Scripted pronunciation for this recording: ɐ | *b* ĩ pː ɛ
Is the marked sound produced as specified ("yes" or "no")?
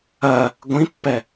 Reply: no